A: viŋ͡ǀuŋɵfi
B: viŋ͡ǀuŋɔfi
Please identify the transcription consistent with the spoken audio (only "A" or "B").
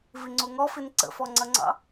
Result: B